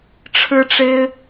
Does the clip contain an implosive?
no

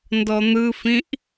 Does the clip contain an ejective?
no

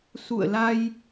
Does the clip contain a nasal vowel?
no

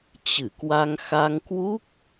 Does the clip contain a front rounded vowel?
no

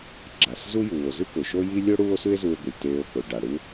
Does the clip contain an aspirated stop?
no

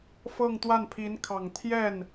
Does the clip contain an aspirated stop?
yes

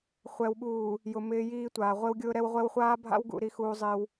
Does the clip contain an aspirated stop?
no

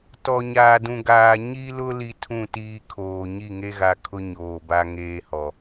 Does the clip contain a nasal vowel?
yes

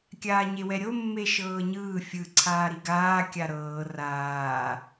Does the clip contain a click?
yes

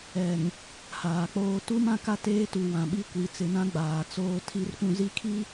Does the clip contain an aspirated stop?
yes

